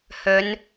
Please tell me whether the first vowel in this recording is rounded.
yes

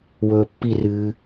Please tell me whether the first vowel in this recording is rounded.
yes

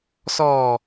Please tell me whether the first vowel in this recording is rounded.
yes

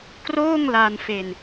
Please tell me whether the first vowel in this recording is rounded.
yes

